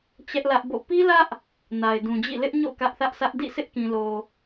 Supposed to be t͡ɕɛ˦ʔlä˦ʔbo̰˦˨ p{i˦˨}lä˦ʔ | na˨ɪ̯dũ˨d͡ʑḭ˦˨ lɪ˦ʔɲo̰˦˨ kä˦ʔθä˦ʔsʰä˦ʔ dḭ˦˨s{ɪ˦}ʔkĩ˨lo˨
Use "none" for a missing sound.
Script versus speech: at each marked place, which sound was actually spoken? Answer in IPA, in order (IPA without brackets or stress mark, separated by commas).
i˦, ɪ˦